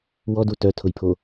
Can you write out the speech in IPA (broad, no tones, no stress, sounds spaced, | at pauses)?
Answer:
w ɔ d u t œ tʰ ʊ j pʰ o